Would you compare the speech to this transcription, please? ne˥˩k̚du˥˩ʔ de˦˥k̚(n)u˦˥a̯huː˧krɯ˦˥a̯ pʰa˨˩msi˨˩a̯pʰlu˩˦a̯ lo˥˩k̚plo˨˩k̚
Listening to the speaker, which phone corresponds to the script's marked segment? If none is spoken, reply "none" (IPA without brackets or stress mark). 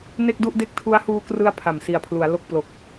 tʰ